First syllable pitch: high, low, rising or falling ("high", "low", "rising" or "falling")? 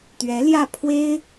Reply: rising